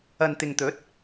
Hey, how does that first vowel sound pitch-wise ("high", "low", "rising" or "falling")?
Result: low